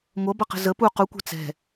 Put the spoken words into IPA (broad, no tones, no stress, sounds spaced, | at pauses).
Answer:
ŋʷ ʌ b ʌ q ə̤ z ə p u q u kʷ ɛ̤ t͡s ɛ̤